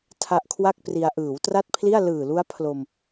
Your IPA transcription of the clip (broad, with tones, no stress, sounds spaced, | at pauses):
tʰ a˦˥ ʔ kʰ w a˥˩ k̚ p r i˧ a̯ ʔ ɯː˩˦ w t r a˥˩ t̚ pʰ l i˥˩ a̯ l ɯː˨˩ l u˦˥ a̯ pʰ l o˧ m